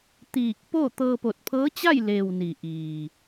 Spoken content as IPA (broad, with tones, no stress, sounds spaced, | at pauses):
t̪ iː˧˩ k̚ p o˥˨ t̪ ɤː˧ p o˧˩ t̚ pʰ ɤː˧˥ t͡ɕ a˥˨ j l eː˩ w n i˩ ʔ iː˩